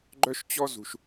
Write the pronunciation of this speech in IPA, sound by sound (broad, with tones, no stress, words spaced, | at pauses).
ɡ͡ǃœ˦ʃt͡ɕɔ˦zṳ˨ʃ